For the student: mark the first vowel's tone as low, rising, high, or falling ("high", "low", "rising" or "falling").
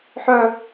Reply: high